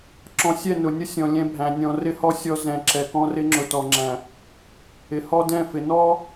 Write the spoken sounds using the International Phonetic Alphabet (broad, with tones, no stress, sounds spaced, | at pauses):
ǁ ɔ̃˨ sʲ ɛ˦˨ n ʊ˨ nʲ ʊ˦ sʲ ɔ̃˨ lʲ ɛ̃˦ bʱ æ̃˨ nʲ ɔ̃˨ r ɪ˦ h ɔ˦ sʲ ɔ˦ z ɛ̃˨ ǁ ɛ˨ k ɔ̃˦ r ɪ˦ ŋ͡ǁ ʊ˨ t ɔ˨ ŋ͡ǁ æ̃˨ | ɪ˨ h ɔ˦ d ɛ̃˦˨ f ɪ˨ n ɔ˦